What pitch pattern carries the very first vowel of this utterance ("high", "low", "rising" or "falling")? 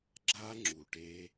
high